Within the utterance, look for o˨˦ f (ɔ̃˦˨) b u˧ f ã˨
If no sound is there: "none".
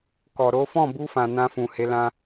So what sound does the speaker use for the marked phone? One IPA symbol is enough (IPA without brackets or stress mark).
ɔ̃˦˨